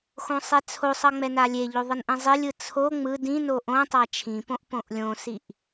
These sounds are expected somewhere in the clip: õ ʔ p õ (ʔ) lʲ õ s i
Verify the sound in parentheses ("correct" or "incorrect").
correct